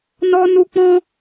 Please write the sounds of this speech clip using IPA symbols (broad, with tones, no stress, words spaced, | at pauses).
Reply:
nɔ˧nu˧k͡pɔ̃˦